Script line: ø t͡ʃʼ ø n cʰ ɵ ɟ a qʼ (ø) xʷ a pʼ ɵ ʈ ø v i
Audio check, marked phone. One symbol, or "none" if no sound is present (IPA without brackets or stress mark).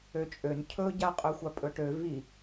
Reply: ø